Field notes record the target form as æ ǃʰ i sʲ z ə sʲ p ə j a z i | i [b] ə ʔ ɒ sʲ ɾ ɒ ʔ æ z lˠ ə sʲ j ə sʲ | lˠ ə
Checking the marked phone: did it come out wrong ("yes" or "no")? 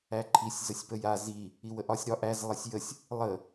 yes